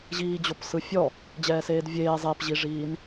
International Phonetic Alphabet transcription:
ʑ iː d͡ʑ o p s ɯ fʲ ɔ | d͡ʑ ɛː s eː d vʲ eː zˤ e p ʑ i ʐ iː n

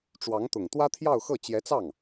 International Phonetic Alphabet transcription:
ʈ͡ʂ w ɑ˧˥ ŋ t̪ ʊ˨˩ ŋ t̪ w ä˥ t̪ʰ j ɑ˥˧ ʊ̯ x ɤ˥˩ t͡ɕ j ɛ˧˥ t͡s ɑ˥˩ ŋ

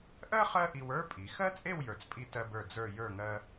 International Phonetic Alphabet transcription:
ʔ ɜ˥ χ ɜ˥ ʔ i˧ w ə˞˥ pʼ i˩˧ x ɜ˥ t͡sʼ e˥˧ w j ə˞˧ t͡s pʼ i˥ t ɜ˧ b ə˞˧˩ d͡z ə˞˥˧ j ə˞˥˧ ŋ ɜ˥

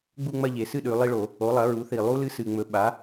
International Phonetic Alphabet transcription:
ɡ͡b u˥˧ ŋ͡m ɐ˥˧ ʎ e˩˧ s ɨ˥˧ ɗ ʉ˩˧ lˠ i˥˧ ɭ o˧˩˧ | o˩˥ lˠ ɐ˩˥ ɹ u˩˥ θ i˨˩ lˠ u˦˥ l ɨ˦˥ s ɨ˨˩ ŋ͡m ɵ˩˥ ɓ a˩˥

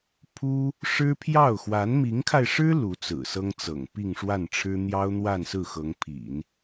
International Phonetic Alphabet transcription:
pʰ u˥ | ʂ ɻ̩˥ pʰ j ɑ˥˩ ʊ̯ x w a˧˥ n m i˧˥ ŋ kʰ a˧ ɪ̯ ʂ ɻ̩˥ l u˧˥ t͡s ɹ̩˨˩ s ɤ˥ ŋ t͡s ɤ̰˨˩ ŋ p i˥˧ ŋ ʂ w a˥˩ n ʈ͡ʂʰ ɻ̩˥ n̪ j ɑ˥ ʊ̯ n̪ w a˥˧ n s ɹ̩˥˩ x ɤ˧˥ ŋ pʰ ḭ˨˩˦ n

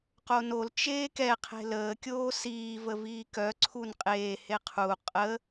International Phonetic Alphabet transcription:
q o n o l t͡ʃ eː k ɛ qʰ e̤ l əː kʲ oː s iː v ə v iː k œ ǀʰ u n qʼ eː h e qʰ u qʼ ə

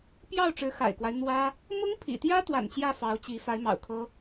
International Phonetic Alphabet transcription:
p j ɑ˥˩ ʊ̯ ʈ͡ʂ ɻ̩˧˥ x a̰˨˩ ɪ̯ k w a˦ ɪ̯ n̪ w ä˥ | m ʊ˥ ŋ pʰ ḭ˨˩ t̪ j ä˥ t̪ w a̰˨˩ n t͡ɕ j ä˥˩ f ɑ˧˥ ʊ̯ t͡ɕ i˧˥ f a˧˥ ɪ̯ m ɑ̰˨˩ ʊ̯ kʰ ɤ˥

